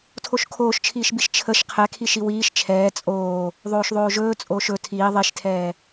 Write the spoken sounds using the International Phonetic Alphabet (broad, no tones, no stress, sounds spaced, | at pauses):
tʰ o ʃ kʰ oː ʃ t͡ʃʰ iː ʃ b i ʃ t͡ʃʰ ə ʃ qʰ ɛ kʰ i ʃ i w iː ʃ t͡ʃʰ ɛː t͡sʼ oː | ðˤ oː ʃ ðˤ oː ʒ ɵː t͡sʼ oː ʃ ɵ tʰ iː ðˤ i ʃ tʰ ɛː